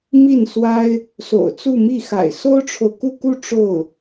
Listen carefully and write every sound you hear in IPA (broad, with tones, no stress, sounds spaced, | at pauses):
m i˥˩ n s w a˥ ɪ̯ | s o̰˨˩ ʊ̯ t͡s u˥˧ m i˥˩ x a̰˨˩ ɪ̯ s o˥ ʊ̯ ʈ͡ʂʰ o˨ ʊ̯ k u˥˧ k u˥˧ ʈ͡ʂ o˥˩ ʊ̯